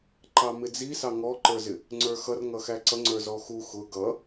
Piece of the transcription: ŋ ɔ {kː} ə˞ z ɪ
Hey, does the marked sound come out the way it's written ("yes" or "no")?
no